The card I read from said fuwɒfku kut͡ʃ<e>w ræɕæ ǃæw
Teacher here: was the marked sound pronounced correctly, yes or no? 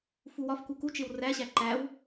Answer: yes